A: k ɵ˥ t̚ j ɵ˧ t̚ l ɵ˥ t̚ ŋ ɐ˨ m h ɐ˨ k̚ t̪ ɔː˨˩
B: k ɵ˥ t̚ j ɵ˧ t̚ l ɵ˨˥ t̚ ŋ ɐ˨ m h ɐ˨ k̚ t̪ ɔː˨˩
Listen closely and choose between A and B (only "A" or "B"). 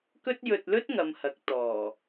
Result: A